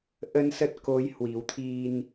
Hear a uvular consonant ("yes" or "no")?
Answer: no